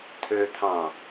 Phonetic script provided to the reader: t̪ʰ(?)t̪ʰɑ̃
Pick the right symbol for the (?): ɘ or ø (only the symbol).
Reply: ø